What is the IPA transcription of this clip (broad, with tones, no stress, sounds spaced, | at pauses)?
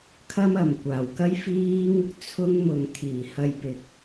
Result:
kʰ ɐ˥ m ɐ˨ m kʷ aː˨˩ w k ɐ˥ j f iː˥ ŋ | t͡sʰ ʊ˥ ŋ m ʊ˨ ŋ t̪ʰ iː˨˩ h ɐ˧ j p ɪ˨ k̚